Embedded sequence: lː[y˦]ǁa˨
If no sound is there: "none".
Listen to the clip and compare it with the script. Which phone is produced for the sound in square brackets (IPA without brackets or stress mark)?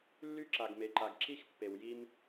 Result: y˦